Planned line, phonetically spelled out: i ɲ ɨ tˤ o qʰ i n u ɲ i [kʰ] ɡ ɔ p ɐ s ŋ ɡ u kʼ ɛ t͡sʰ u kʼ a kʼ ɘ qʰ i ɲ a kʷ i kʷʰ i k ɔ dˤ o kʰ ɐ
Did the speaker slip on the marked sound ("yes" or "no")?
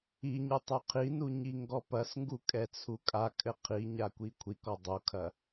yes